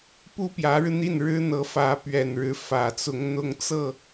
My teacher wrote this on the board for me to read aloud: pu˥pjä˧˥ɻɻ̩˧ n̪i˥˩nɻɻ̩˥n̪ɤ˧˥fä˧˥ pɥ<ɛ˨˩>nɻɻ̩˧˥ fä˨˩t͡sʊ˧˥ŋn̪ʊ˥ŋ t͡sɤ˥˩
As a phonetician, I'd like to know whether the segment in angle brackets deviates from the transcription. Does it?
no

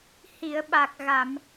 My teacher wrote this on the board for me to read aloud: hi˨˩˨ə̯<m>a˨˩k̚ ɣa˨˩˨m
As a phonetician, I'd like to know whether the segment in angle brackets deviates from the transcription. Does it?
yes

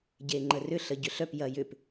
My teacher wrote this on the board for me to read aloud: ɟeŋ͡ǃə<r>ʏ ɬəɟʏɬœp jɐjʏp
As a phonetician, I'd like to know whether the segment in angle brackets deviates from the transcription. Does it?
no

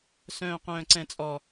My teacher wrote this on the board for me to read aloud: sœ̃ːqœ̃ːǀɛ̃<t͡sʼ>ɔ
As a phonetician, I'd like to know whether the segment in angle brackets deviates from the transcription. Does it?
no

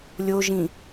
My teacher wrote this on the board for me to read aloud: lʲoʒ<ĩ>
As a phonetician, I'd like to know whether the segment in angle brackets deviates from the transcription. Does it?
no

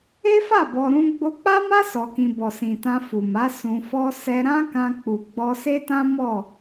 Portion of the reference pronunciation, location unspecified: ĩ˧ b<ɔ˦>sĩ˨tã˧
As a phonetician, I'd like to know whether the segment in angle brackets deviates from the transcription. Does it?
yes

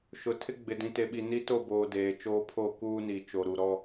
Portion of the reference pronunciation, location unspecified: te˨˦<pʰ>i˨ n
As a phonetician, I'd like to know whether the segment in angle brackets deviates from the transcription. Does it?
yes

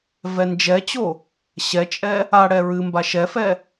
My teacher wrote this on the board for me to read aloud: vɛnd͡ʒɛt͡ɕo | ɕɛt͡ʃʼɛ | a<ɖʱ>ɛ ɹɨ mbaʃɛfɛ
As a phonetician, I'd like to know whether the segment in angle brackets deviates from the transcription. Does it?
yes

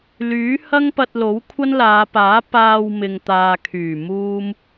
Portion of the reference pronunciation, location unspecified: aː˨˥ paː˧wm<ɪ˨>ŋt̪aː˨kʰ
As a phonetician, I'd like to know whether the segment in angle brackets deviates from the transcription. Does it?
no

